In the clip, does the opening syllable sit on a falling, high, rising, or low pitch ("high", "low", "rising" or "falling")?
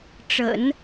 low